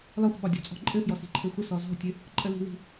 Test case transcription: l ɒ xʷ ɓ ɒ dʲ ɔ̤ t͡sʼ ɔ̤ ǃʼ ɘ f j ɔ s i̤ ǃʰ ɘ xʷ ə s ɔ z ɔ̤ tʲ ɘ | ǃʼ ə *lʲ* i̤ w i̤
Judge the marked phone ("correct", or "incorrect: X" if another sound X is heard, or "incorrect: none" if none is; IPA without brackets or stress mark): incorrect: l